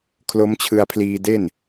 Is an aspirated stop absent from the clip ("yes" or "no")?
no